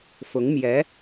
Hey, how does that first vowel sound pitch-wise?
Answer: rising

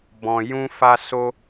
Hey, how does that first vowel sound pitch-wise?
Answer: low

